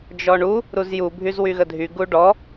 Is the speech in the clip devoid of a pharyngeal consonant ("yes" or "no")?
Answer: yes